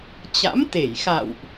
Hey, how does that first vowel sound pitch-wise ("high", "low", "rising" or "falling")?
rising